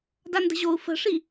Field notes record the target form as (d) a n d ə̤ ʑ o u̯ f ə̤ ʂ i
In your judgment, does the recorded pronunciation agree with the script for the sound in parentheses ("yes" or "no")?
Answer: yes